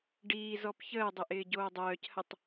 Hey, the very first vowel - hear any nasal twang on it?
no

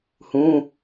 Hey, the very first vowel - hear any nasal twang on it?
yes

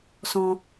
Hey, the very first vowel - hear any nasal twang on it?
yes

